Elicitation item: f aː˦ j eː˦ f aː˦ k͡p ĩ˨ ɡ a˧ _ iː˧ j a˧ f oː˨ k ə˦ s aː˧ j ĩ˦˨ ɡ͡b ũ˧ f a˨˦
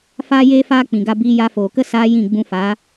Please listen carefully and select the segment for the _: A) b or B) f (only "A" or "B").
A